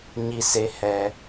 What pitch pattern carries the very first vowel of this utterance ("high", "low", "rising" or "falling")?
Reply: high